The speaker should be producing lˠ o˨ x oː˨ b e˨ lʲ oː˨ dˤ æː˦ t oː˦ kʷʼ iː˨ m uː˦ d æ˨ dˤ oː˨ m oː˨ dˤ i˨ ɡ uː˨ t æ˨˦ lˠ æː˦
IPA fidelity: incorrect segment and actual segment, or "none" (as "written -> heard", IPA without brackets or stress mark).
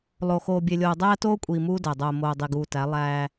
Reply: b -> bʲ